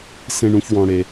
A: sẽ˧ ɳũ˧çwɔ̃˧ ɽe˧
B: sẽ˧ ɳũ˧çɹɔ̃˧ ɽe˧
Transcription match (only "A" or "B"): A